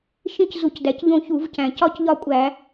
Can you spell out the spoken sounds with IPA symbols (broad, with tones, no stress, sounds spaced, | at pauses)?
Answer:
ʃ ĩ˦ c z u˧˩˧ c d æ˩˧ c ʎ õ˦˨ ç u˧˩˧ v c æ̃˨˩ c ɒ˦˨ c ʎ ɒ˦˨ kʷʼ æ˧˩˧